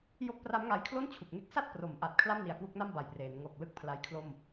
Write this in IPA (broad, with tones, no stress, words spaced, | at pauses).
jo˦˥k̚pra˦˥mŋa˧jkʰlo˥˩n t͡ɕʰu˨˩k̚ŋe˦˥k̚ sa˥˩t̚ pro˩˦mʔa˨˩t̚ kʰla˥˩mni˨˩a̯kwu˦˥k̚na˥˩m ba˨˩jpreː˩˦n ŋo˨˩k̚ lɯ˥˩k̚pʰla˦˥jkʰlo˥˩m